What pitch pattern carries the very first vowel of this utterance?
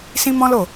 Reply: high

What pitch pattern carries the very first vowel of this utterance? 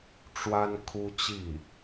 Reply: high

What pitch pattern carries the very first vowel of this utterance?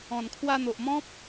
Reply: low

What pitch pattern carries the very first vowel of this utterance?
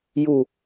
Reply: low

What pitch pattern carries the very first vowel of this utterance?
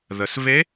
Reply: low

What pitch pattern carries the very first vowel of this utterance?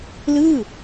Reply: falling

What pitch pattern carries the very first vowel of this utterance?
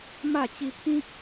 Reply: falling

